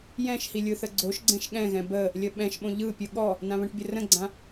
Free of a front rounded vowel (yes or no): yes